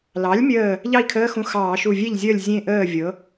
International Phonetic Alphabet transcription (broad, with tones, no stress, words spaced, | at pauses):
lɑ˩˥lʲmʲəː˧˩ | ʎɑ˥˩i̯kʰəː˧˥˧xũ˧˩ xɑː˧˩˧ʃu˧˩vʲe˥˩ʎzʲəː˥˩lʲ zʲẽ˥˩ ʔəː˥˩ vʲɤ˩˥